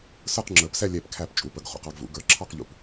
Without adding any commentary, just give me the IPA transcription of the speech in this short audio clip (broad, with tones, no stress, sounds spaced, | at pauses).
s ə˞˥˧ q ŋ͡ǁ ə˞˧˩ p s ɛ˥˧ lʲ ɛ˧˩ p kʰ æ˧˩ p t͡ʃʼ u˩˧ p ə˩˧ ɡ χ ṵ˧˩ q ɑ˧ ɡ v ṵ˩˧ ɡ ə˞˧˩ ǁʰ ɑ˥˧ q ʎ ṵ˧ p